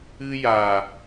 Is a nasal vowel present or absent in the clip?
absent